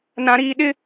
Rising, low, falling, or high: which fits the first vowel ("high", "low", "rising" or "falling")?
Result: high